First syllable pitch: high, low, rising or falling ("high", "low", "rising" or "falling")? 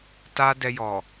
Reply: high